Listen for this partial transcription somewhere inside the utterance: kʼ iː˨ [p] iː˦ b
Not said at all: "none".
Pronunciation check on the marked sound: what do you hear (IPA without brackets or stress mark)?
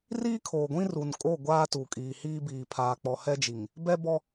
h